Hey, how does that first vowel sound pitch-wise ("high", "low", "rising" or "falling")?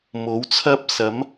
rising